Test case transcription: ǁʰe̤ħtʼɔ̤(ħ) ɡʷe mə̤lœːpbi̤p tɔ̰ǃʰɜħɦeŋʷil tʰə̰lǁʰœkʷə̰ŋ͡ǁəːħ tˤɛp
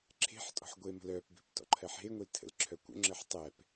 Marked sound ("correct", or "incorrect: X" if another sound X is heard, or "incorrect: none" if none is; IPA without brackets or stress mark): correct